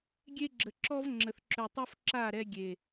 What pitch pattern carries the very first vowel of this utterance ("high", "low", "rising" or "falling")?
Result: high